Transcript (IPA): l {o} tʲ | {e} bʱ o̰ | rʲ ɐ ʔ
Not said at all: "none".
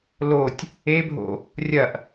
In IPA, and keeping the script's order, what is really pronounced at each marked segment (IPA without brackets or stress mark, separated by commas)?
o, e